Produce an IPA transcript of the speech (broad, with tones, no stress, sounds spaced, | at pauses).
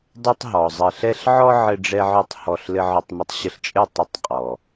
dˤ ɛ˦ tˤ ɦ ɔ˨ zˤ ɘ˧ ɬ ɛ˦ ɬ ʕ ɔ˦ ʕ ɘ˧ ɖ͡ʐ ɛ˦ ʕ ɔ˦ tˤ h ɔ˧ ɬ l ɘ˧ ʕ ɔ˧ tˤ m ə˧ tˤ ɕ ə˧ ɬ t͡ʃʼ ɘ˦˨ tˤ ə˦ tˤ qʼ ɔ˨